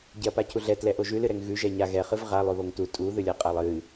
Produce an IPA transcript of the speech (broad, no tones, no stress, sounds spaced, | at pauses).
ɟ ɛ ɐ̯ p a cʰ u ɮ ɛ t l ɛ ʔ o ʒ ʉ l ɨ ɾ ɛ ŋ ɣ ʉ ʒ ɛ ɲ a ɣ ɛ χ ɨ v ʁ a lˠ ʉ β o ŋ t u tʼ u ð ɨ lʲ a qʼ a lˠ ɨ